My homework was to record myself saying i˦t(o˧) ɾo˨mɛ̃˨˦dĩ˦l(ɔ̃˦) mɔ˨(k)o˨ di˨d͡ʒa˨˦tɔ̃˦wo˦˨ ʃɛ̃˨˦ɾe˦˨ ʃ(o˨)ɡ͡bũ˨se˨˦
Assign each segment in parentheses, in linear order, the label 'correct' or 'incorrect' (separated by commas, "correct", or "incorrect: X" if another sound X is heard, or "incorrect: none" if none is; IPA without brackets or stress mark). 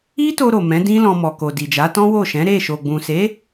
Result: correct, incorrect: ɔ̃˧, correct, correct